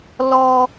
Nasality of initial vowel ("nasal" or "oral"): oral